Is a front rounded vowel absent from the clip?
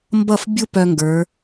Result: no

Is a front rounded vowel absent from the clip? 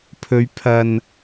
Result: yes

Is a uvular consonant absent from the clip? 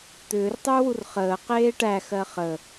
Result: no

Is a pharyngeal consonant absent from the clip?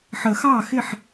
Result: no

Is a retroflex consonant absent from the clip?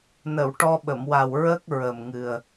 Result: no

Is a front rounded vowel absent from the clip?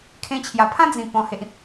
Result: yes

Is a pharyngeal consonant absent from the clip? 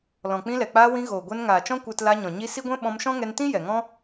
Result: yes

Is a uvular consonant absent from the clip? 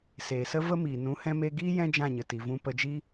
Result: yes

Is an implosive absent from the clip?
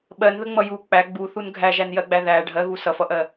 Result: no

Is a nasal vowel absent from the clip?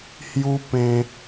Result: no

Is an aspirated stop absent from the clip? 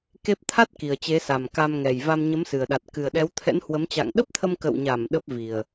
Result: no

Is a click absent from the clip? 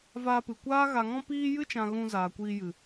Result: yes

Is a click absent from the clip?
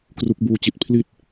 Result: yes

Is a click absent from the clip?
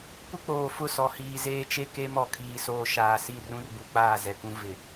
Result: yes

